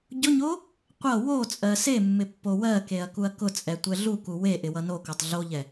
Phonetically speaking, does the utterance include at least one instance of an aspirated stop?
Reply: no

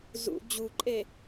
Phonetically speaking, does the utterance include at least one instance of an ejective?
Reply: yes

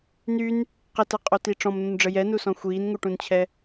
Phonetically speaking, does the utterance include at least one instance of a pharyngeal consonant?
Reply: no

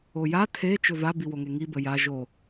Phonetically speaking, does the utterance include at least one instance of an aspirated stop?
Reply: yes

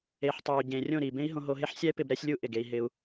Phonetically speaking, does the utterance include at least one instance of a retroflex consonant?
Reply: no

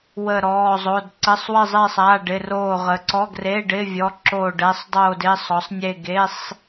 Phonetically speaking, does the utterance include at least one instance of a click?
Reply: yes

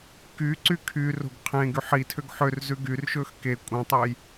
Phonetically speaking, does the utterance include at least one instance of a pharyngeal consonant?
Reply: yes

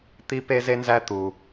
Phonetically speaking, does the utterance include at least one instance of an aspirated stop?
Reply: no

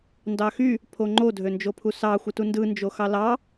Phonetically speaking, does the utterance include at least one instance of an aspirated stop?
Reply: yes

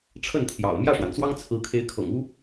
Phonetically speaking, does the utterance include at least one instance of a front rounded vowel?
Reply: no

